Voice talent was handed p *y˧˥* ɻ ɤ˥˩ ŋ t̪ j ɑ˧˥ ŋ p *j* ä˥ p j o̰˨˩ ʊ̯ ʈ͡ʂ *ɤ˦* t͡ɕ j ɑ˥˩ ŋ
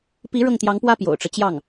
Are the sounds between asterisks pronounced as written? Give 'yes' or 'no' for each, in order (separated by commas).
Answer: no, no, yes